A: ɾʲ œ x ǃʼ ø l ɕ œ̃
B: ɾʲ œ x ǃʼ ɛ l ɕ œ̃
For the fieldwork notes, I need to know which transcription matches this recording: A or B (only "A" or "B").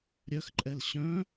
B